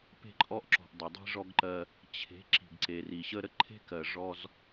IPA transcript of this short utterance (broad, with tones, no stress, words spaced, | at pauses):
pe̤˦ǃʼɔ˦ʔǁɔ̤˨ʔ dˤə˨dˤi̤˦ʐɔ˦ɡǃɜ˦ | t͡ɕʰe̤˨˦ ǁi̤˨ɡǀe˨ri˨ɕə˦ ɾə˦ǃʰe̤˦kɜ˨ ʐɔ˦z